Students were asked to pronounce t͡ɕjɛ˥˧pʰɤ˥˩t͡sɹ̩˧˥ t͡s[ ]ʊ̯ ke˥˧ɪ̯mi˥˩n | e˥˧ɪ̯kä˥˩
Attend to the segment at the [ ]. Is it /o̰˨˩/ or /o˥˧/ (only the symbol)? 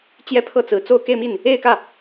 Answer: o˥˧